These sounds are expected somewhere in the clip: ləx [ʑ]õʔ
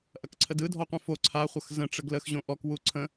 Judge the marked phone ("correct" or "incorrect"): correct